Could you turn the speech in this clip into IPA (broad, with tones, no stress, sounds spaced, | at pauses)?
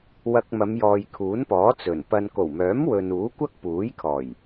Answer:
w ɐ˧ k̚ m ɐ˨˧ m j ɔː˨ j kʰ uː˨˥ n p ɔː˨˥ t͡s ɵ˨˩ n p ɐ˧ n k o˨˩ w m œː˨˥ m w ɵ˨ n uː˨˥ kʷ ɐ˥ k̚ p uː˨˥ j kʰ ɔː˨˩ j